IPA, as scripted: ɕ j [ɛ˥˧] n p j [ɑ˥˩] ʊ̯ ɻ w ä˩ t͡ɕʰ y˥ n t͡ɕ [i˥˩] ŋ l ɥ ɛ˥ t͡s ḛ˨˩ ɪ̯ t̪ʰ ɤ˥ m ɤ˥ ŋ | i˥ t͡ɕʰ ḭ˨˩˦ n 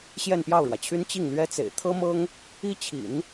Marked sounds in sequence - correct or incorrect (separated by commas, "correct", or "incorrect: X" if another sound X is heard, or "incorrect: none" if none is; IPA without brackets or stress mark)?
correct, correct, correct